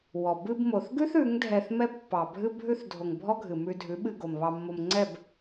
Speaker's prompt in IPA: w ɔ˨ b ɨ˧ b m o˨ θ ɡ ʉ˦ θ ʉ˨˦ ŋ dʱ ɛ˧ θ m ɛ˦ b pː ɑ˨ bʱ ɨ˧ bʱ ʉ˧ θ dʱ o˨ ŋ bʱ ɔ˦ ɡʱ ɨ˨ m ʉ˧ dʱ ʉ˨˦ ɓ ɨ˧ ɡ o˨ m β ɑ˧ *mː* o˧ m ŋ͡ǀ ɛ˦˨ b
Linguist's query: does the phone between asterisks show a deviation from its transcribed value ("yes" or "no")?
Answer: no